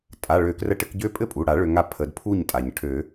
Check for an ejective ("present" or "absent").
present